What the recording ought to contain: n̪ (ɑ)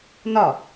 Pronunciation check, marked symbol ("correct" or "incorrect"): incorrect